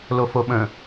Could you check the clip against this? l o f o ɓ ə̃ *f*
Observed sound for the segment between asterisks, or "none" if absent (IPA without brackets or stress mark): none